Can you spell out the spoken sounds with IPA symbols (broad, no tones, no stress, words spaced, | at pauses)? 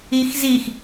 ixzix